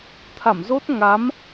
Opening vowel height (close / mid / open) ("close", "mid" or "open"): open